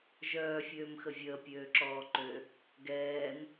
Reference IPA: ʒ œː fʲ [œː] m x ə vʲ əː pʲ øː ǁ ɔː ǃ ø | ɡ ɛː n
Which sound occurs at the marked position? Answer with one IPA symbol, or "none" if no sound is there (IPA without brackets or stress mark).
øː